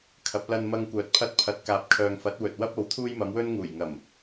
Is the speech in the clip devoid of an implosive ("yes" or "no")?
yes